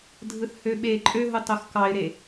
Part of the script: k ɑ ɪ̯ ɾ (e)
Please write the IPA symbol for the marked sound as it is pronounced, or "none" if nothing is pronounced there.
e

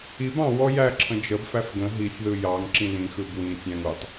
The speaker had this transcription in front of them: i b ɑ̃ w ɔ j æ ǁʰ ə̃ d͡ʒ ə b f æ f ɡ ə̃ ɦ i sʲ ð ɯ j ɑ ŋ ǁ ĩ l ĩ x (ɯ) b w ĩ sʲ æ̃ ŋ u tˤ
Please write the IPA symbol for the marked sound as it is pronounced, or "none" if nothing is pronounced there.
ɯ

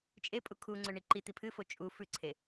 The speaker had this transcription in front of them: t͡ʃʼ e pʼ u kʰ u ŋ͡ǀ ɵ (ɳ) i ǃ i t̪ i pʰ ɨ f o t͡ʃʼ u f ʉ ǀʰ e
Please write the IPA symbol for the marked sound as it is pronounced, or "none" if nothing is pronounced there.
ɳ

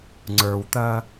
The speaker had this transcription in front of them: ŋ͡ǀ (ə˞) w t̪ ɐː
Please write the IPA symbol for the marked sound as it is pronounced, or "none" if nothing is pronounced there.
ə˞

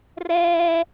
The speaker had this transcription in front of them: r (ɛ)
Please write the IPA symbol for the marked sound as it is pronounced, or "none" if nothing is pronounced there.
ɛː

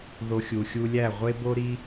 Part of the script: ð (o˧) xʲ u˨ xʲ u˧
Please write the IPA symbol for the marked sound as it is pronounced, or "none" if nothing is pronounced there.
o˧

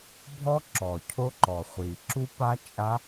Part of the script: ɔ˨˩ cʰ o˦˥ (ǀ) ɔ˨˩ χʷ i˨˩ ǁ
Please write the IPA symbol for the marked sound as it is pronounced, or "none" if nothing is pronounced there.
ǃ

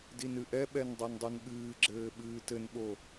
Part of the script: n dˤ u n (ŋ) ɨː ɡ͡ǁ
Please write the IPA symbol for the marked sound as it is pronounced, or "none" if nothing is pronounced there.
ɠ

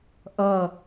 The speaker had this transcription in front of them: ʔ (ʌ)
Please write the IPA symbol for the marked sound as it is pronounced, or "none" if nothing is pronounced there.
ʌ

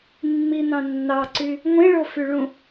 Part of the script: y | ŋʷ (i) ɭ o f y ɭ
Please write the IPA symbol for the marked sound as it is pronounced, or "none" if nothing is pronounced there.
ĩ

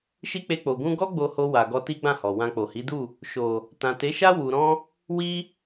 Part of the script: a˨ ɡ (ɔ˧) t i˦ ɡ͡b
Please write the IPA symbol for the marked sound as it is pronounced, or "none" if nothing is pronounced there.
ɔ˧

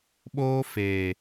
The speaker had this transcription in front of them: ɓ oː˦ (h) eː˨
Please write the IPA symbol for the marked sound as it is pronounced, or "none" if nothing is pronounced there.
f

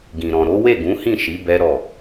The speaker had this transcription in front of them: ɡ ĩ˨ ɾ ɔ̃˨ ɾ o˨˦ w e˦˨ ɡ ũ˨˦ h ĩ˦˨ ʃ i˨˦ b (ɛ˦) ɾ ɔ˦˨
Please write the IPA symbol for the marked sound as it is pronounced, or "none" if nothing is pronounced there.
ɛ˦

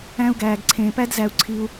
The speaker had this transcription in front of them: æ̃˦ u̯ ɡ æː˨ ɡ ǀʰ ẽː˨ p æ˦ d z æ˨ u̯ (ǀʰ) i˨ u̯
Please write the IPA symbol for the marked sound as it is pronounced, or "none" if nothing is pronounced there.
ǀʰ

